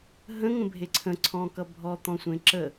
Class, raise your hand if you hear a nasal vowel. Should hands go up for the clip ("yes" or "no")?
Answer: yes